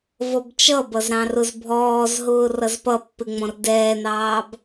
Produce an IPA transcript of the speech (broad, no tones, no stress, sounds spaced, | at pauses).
v ɔ b t͡ʃ ʌ b ʌ z ɾ ɑ̃ r ʊ z bʱ ɔː z ɦ ʊː r ʌ z p ʌ pː ɪ ŋ͡m ɔ̃ r d ɛː n ɑː b